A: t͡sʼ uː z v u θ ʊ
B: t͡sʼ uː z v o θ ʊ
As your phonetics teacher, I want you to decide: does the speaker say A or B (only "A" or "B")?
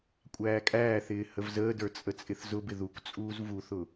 A